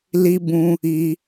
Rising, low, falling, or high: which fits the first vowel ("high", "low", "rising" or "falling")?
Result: high